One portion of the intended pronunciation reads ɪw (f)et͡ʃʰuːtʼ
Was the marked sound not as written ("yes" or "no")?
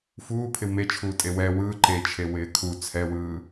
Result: yes